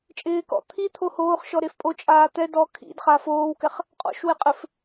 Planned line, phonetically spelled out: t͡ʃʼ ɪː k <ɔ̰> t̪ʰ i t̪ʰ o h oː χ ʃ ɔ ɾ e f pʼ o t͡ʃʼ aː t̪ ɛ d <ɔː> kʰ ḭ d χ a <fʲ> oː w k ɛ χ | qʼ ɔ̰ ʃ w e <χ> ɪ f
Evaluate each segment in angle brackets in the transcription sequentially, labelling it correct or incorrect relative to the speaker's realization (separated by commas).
correct, incorrect, incorrect, incorrect